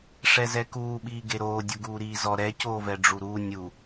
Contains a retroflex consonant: yes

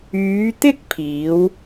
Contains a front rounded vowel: yes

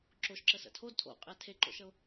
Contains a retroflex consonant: no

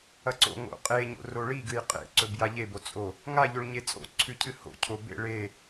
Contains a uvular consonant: yes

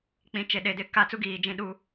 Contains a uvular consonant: no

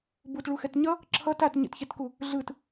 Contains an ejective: no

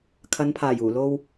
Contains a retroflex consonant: no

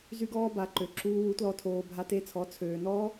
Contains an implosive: no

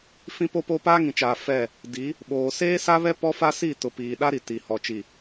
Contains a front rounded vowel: no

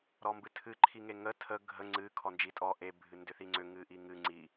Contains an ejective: yes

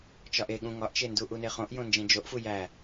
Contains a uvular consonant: yes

